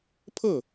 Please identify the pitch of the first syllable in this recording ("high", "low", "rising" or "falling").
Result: falling